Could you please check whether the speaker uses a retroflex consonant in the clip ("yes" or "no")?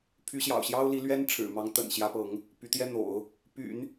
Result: yes